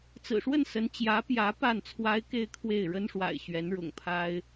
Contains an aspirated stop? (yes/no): yes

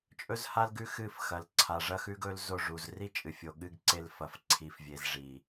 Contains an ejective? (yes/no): yes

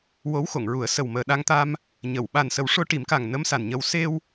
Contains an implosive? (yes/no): yes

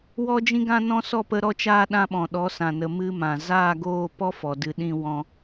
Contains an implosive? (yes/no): yes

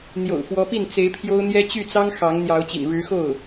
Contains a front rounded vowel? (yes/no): yes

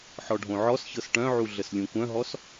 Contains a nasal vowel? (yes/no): yes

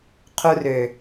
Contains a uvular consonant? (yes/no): yes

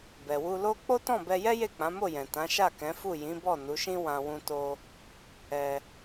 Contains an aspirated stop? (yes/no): no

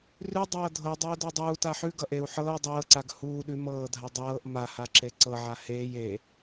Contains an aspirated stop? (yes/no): no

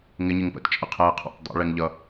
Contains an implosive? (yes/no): no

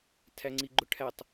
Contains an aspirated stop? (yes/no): yes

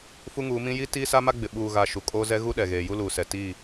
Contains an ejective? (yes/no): yes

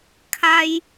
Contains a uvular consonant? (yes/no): no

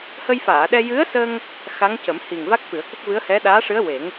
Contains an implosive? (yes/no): yes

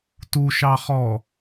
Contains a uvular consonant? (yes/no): yes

